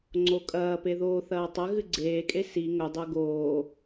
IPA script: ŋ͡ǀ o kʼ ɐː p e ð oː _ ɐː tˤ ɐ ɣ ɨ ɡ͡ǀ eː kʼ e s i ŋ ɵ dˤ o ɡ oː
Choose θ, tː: θ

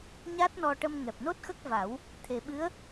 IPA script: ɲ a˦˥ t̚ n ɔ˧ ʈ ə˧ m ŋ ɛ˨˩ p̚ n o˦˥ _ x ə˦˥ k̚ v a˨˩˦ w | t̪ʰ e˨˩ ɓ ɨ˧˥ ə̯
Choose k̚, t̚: t̚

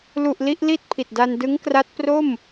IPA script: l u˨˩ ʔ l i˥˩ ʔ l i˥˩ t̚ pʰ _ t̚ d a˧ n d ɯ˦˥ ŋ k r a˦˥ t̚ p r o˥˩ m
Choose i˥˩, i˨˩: i˨˩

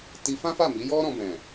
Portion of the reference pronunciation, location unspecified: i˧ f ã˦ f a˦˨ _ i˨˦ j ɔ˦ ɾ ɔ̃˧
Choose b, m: m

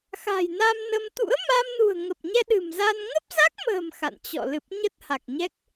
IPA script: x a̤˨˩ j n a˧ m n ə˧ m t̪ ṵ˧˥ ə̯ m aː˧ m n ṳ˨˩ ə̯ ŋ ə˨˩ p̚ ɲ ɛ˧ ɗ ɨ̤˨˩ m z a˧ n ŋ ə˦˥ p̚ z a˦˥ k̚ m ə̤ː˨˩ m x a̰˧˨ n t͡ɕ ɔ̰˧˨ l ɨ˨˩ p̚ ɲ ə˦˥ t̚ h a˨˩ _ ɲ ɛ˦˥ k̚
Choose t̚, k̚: k̚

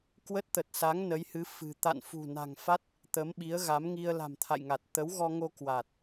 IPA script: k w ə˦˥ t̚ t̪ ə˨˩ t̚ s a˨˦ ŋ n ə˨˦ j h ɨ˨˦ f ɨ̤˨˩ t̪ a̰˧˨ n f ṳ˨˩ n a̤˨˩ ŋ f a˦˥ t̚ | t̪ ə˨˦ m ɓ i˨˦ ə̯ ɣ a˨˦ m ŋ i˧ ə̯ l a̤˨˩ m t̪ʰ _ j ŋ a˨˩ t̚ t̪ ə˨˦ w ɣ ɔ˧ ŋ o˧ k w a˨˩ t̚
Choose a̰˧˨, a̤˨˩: a̰˧˨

